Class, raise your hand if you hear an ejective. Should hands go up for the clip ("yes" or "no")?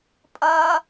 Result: yes